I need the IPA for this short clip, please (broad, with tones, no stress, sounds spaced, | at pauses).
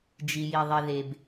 d͡ʒ i˨ j i˨ ðˤ i˨ ð e˨ b